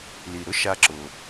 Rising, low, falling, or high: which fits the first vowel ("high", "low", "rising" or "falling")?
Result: low